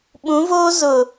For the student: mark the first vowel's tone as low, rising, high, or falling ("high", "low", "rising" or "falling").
rising